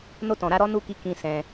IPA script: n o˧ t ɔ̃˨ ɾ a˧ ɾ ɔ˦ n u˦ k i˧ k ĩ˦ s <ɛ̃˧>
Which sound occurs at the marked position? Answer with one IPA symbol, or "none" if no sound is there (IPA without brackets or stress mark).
ɛ̃˧